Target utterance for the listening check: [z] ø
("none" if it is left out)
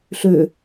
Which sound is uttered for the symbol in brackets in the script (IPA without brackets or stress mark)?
ɬ